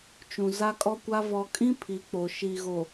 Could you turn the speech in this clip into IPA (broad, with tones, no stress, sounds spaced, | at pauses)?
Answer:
t͡ʃ ũ˨ z a˦ kʼ ɔ˦ kʷ a˦ v ɔ˨ kʼ ĩ˦ pʰ i˨˦ k͡p o˨ ʃ iː˨ ɣ o˨